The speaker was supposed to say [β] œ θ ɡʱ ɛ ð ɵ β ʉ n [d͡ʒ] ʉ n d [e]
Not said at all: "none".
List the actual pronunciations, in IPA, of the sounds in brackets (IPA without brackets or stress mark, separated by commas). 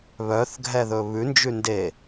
β, d͡ʒ, e